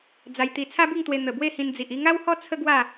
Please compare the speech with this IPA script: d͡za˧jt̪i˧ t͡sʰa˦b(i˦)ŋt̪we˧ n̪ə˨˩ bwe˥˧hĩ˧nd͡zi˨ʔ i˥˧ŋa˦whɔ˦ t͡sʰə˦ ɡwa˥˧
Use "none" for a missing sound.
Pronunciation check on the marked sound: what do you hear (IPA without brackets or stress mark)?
i˥˧